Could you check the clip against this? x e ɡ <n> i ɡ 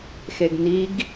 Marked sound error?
no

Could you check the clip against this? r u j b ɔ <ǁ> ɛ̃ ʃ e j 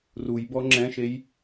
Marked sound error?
yes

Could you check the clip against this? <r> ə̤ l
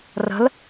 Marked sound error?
no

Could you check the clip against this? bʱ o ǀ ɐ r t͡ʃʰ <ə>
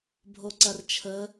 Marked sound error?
no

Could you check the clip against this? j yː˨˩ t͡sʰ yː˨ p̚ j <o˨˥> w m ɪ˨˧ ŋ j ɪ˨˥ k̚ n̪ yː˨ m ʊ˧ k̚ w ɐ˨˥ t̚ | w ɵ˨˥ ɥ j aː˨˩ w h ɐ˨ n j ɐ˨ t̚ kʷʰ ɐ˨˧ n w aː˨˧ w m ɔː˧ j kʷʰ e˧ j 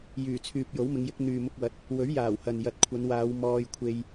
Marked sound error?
no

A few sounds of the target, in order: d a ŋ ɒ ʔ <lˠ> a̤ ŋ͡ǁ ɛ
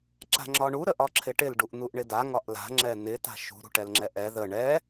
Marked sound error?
yes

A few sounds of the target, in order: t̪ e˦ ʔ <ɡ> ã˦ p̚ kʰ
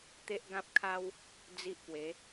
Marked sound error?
no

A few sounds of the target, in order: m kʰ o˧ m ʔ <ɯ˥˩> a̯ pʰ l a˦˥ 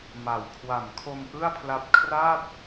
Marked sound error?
no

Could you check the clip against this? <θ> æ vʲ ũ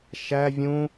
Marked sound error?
yes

